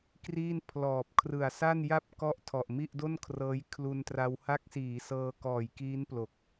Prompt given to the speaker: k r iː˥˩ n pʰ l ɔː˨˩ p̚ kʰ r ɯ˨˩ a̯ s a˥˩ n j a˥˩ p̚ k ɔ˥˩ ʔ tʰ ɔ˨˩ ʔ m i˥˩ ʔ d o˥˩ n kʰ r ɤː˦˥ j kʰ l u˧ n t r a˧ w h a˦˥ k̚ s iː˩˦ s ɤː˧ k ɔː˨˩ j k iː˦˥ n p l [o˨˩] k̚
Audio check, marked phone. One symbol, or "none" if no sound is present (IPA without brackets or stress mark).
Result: o˨˩